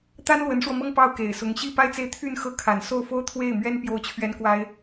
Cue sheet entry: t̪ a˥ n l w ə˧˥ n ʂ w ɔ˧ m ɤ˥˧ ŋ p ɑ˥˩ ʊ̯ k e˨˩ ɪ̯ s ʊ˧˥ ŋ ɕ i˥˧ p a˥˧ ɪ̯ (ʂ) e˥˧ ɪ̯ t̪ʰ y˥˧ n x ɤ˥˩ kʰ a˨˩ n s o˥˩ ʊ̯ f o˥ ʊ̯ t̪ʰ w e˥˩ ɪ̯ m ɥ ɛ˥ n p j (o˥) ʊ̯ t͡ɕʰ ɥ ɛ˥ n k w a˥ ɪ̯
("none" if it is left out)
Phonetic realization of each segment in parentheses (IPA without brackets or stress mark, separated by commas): t͡s, o˥˩